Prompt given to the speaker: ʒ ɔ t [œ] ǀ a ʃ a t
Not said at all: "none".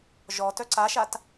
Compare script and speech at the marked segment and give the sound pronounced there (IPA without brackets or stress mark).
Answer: œ